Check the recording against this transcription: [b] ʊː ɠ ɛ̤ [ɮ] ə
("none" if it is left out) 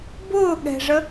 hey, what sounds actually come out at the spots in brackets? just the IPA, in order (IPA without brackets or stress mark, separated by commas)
b, ʐ